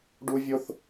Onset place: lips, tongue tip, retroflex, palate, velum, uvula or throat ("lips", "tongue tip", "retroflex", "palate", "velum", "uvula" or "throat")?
retroflex